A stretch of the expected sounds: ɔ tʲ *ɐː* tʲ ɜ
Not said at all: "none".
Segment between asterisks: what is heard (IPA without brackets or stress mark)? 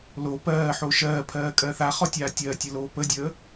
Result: aː